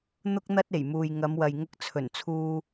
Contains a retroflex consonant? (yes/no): no